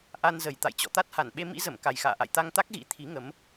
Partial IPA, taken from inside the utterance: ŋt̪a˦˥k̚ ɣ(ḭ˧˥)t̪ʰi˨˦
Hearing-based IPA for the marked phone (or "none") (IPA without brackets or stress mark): ḭ˧˥